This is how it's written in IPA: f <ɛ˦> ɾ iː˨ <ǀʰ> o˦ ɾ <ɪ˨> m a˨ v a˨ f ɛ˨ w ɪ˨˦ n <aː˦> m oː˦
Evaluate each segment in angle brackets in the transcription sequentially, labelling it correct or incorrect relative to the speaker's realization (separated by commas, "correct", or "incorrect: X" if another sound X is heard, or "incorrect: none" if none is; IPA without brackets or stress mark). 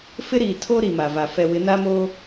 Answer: incorrect: ɪ˦, incorrect: tʰ, incorrect: i˨, correct